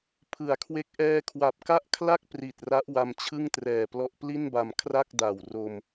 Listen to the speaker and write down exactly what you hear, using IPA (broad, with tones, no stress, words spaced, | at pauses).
pʰɯ˩˦a̯kʰwe˦˥k̚ ʔɛː˧kʰwa˨˩p̚ ka˥˩ʔkʰla˥˩k̚ pri˨˩t̚ra˦˥ʔwa˧m t͡ɕʰɯ˥˩ŋtrɛː˨˩plɔ˦˥ʔ pli˥˩nba˧m kʰra˥˩k̚ da˨˩w ro˧m